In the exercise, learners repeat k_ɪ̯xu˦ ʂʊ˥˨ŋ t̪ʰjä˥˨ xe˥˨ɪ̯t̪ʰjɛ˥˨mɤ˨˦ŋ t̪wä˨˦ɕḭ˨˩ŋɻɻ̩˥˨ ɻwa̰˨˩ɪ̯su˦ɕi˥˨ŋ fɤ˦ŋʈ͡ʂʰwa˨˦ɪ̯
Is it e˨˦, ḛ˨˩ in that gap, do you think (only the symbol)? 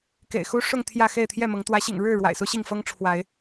ḛ˨˩